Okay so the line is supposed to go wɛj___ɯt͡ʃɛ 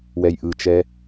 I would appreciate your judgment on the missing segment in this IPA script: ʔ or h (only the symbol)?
ʔ